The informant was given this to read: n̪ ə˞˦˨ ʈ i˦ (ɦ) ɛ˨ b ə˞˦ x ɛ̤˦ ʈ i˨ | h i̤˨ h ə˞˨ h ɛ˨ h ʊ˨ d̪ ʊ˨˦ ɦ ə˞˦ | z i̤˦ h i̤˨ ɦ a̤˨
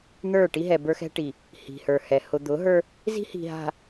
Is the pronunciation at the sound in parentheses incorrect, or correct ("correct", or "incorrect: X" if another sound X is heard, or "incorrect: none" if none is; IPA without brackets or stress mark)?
correct